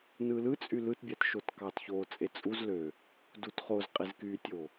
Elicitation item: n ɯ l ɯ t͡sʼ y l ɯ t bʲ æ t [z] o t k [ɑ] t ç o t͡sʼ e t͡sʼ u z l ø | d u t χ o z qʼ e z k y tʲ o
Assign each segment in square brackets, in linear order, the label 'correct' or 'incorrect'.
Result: incorrect: ʃ, correct

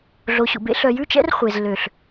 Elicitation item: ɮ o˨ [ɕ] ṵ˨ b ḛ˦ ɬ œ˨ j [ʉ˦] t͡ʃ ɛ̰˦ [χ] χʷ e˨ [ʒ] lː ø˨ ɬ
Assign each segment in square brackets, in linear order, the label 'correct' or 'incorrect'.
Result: correct, correct, incorrect: r, incorrect: z

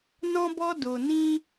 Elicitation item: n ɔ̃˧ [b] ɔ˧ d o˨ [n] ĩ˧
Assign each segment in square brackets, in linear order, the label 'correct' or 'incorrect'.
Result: correct, correct

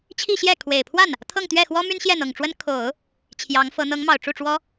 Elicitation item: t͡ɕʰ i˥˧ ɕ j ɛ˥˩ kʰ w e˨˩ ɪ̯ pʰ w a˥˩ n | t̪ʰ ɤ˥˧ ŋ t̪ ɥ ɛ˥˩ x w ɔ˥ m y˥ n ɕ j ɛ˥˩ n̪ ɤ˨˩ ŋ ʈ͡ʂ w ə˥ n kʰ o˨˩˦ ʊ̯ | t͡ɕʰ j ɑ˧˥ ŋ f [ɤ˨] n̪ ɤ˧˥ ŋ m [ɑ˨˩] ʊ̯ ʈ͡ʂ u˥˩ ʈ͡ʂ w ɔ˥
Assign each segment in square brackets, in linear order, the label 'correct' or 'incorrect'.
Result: incorrect: ɤ˧˥, correct

